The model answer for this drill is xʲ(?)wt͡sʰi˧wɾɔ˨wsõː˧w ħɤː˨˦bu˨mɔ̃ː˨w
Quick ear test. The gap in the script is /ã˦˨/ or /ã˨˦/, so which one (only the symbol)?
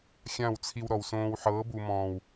ã˦˨